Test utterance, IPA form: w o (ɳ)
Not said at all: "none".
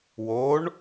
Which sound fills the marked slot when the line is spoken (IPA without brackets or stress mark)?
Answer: ɳ